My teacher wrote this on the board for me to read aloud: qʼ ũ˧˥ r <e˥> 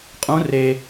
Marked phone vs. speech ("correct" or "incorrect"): incorrect